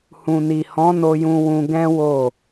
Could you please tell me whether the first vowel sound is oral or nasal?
nasal